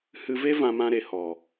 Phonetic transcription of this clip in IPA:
h ɨ˧ v e˦ v ã˧ m ã˧ ɾ e˨ h ɔ˨

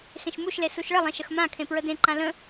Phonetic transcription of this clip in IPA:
x ẽ ʃ m u ʃ l e s u ʃ ɭ ə lˠ ẽ ʃ ə x m ã kʰ ẽ p ɹ ə d ẽ ǃ ã l ə̃

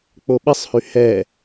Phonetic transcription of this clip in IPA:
k͡p o ɓ i sˤ h y h ɛ

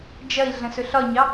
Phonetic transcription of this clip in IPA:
d͡ʒ ɐ i̯ ɮ ə̃ s ɵ ɬ ɒ ɲ ɑ

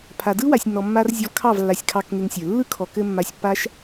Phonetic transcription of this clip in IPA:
pʰ a˨ d ɯ˦ w a˨ sʲ nː ɔ˨ mː a˧ r zʲ ɔ˧ v kʰ ɑ˦˨ v lː a˨ sʲ kʰ ɑ˧ k ŋ e˧ ŋ sʲ ə˞˨ lː ɯ˦ kʰ ɔ˨ k ɘ˧ mː a˧ sʲ pː a˦ ʃ

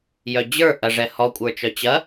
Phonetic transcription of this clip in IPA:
j œ d͡ʑ ə˞ ʔ ɐ ʐ ɛ h ɔ kʷʼ ə˞ t͡ʃ œ t͡ɕ ɐ

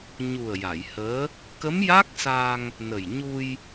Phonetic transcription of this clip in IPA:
ɲ u˨˩ ə̯ j a˨˩˨ j h əː˧˥ | k ə˧˥ m j a˦˥ k̚ s a˧ ŋ | n ə˨˩ j ɲ u˧ j

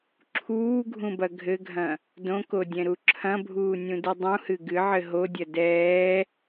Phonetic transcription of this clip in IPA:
ǁʰ uː ɡʱ ũ b ɐ ɡʱ ɘ ɡʱ ɐ̃ | d õ k o dʲ ɛ̃ ɾ u ǁʰ ɐ̃ bʱ uː nʲ ũ d ɨ dˤ ũ h ɨ ɡ ɨ ʕ ɘ ɦ o dʲ ɐ d ɛː

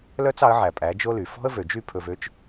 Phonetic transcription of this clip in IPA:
l œ˥ t͡s ɑ˩˥ ə̯ ʕ æ˩ pʼ æ˩˥ d͡ʒ o˥ l y˩ f ɔ̤˥ ə̯ v ø˩ d͡ʒ y˥˩ pʰ ɵ˧ v ø˥ t͡ʃ

